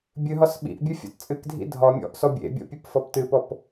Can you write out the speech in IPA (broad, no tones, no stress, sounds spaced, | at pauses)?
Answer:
bʲ ɨ ɦ ɒ s ɓ ḭ ʔ bʲ ɨ fʲ ɔ̰ t t͡sʼ ɨ k dʱ ḭ dʱ ɒ mʲ ɔ̰ ʔ s ɔ bʲ ḛ bʲ ɔ̰ pʲ ɨ p f ɔ p t ɨ p ɔ p